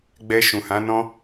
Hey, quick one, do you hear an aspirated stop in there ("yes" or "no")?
no